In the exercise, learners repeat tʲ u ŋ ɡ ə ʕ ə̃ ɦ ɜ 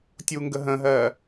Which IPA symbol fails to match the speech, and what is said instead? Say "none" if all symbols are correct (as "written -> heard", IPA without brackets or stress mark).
ʕ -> ɦ